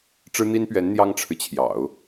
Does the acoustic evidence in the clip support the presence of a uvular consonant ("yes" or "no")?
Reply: no